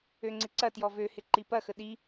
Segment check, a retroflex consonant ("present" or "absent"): absent